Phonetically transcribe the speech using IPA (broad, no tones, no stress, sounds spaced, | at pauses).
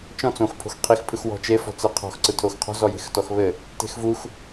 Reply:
t͡ʃ ɔ̃ t͡s õ x pʰ o̤ x qʰ i x pʰ ɯ x w ɔ̤ t͡ʃ e f ɔ̤ t͡s ɘ qʰ ɔ̤ x ǀ ɯ tʰ o x qʰ ɔ̤ z ɔ j e̤ x t ɔ x β ɘ | t e̤ x v u x